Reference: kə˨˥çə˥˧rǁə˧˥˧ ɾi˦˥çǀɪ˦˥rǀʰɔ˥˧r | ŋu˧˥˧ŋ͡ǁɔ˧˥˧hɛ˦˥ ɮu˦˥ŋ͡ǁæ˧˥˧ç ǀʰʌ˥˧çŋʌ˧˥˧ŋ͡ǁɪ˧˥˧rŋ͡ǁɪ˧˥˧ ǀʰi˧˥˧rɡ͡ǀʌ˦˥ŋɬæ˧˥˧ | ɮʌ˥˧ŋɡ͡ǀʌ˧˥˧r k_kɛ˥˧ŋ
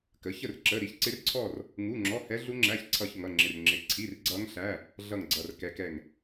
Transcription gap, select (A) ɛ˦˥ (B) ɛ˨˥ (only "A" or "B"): A